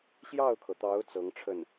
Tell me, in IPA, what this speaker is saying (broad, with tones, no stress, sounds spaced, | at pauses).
ɕ j ɑ˥˩ ʊ̯ kʰ ɤ˩ t̪ ɑ˧˥ ʊ̯ t͡s ɤ˧˥ ŋ ʈ͡ʂʰ ə˥˩ n